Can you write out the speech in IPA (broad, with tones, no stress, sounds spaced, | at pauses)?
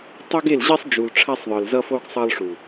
tˤ o˦ ɡ e˦˨ l ʑ i˦ sˤ d͡ʒ u˨ l ʈ͡ʂʰ a˦ sˤ ðˤ ɯ˨ l z ʌ˦ f o˦ ɡ sˤ ʌ˦ lˠ ʂ u˨